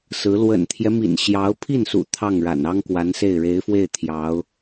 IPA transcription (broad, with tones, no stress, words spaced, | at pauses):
sɹ̩˧˥ lwə̰˨˩nt̪ʰjɛ˦mḭ˨˩n ɕjɑ˧˥ʊ̯ pʰi˥˩nsṵ˨˩ t̪ʰɑ˥˩ŋɻa̰˨˩n ɑ˥ŋkwa˧˥nse˥˩ɪ̯ ɻe˧˥ɪ̯fwe˥˩ɪ̯ t̪ʰjɑ˧˥ʊ̯